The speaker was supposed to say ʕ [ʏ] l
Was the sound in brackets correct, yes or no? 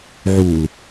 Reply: no